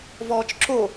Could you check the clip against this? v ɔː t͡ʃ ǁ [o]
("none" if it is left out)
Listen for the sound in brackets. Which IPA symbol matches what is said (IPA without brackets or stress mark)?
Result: o